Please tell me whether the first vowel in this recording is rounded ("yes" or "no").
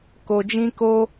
yes